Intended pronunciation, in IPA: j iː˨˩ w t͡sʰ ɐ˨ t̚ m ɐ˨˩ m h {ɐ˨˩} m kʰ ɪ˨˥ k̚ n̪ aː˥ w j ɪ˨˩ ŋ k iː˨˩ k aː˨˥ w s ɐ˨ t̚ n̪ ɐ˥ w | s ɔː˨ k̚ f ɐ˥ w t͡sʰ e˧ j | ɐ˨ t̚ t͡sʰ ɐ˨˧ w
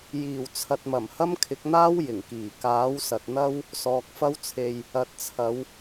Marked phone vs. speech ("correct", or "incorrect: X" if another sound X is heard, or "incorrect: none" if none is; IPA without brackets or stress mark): incorrect: ɐ˥